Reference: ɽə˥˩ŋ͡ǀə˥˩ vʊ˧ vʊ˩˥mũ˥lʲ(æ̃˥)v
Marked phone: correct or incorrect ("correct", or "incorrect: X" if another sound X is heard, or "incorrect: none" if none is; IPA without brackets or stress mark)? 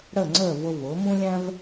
correct